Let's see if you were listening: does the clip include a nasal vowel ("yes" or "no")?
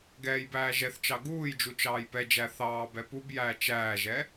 no